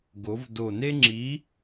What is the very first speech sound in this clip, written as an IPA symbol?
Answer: ɡ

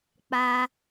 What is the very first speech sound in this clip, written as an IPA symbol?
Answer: k͡p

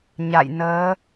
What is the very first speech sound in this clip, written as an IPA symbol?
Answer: ɲ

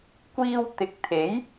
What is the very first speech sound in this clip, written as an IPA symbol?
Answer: kʷ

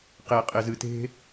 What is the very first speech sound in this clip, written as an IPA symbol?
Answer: q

